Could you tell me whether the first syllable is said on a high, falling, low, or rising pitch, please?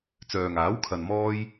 low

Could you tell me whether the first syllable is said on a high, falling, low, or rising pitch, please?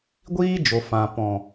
high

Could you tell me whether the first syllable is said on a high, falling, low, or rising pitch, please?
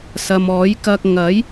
low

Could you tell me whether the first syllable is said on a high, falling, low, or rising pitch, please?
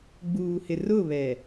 low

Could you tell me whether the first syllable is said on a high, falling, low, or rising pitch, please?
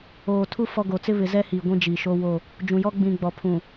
low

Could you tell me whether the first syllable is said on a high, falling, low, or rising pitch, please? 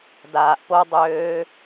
low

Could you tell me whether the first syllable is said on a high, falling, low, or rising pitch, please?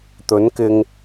rising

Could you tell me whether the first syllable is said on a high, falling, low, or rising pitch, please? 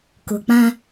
low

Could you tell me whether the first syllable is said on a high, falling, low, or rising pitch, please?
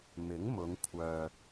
rising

